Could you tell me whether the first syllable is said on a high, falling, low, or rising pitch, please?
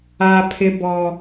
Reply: low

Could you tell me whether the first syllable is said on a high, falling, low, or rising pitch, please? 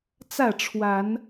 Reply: falling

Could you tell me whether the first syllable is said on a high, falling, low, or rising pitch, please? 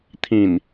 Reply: low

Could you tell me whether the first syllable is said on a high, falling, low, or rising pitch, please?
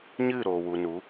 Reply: falling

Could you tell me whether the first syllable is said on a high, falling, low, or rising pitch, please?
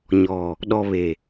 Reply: low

